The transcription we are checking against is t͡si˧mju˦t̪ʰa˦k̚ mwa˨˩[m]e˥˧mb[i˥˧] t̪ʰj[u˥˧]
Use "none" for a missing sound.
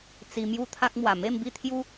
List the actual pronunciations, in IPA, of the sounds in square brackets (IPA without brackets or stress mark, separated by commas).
m, i˥˧, u˦